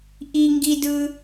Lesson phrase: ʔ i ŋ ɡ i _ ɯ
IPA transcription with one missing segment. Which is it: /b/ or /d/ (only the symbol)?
d